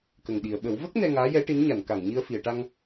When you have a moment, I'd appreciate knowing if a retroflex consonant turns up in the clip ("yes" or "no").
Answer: yes